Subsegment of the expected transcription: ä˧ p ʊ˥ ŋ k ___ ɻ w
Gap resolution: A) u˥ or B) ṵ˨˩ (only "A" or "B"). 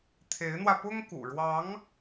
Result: B